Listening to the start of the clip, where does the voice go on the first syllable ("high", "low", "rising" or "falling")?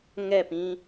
falling